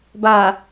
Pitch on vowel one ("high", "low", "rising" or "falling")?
low